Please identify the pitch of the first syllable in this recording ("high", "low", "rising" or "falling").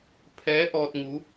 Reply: rising